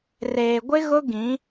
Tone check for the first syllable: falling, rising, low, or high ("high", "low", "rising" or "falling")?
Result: low